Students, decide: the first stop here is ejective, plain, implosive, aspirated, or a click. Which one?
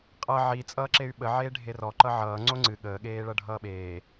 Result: ejective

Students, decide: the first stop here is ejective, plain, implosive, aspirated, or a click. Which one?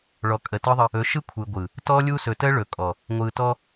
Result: ejective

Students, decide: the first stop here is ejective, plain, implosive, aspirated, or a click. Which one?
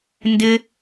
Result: plain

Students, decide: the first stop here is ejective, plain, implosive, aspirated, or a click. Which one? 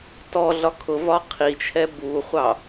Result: plain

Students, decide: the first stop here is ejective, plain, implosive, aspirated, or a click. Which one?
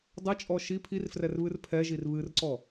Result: plain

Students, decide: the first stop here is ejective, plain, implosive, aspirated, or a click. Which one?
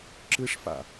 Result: click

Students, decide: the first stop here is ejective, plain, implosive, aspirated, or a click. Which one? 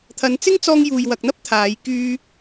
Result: aspirated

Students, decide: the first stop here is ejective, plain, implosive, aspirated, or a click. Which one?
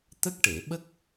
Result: plain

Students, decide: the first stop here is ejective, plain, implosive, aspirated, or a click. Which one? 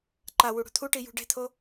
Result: click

